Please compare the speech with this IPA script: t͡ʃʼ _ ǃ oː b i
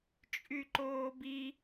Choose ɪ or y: y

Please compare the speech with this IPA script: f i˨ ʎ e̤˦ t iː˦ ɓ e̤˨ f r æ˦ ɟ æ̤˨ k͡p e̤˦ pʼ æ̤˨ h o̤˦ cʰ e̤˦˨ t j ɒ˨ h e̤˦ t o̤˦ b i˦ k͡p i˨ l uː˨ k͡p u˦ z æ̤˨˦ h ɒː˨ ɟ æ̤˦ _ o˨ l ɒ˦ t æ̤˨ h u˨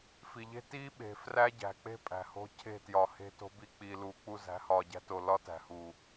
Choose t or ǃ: t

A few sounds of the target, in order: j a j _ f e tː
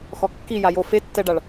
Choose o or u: o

